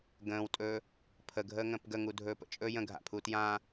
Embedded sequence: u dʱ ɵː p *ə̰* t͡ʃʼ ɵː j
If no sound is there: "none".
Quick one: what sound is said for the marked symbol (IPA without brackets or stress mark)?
ə̰